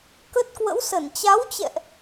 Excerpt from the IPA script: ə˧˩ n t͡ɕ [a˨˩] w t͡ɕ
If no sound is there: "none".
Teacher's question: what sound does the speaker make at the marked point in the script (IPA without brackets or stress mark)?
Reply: a˨˦